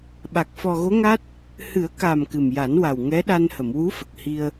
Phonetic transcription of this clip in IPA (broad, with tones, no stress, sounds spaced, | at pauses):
ɓ a˨˩ k̚ f ɔ˨˩ ɣ o˧˥ ŋ a˦˥ t̚ | h ɨ˨˩˦ ə̯ k a˨˩ m k ɨ˨˩ m j a˨˩˦ n w a˨˩ w ŋ ɛ˧˥ ɗ a˧ n h ə˨˩˨ m w u˧˥ f ə˨˩ k̚ h i˧ ə̯